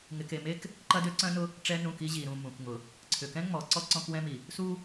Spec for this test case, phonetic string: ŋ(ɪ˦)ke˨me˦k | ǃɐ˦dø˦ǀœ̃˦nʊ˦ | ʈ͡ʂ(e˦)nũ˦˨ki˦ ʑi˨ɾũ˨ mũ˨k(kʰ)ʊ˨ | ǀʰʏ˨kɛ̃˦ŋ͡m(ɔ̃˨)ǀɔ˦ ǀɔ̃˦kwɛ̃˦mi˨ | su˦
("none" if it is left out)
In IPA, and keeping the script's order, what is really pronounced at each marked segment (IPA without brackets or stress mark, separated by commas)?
ɪ˨, ɛ˦, ŋ, ɔ˨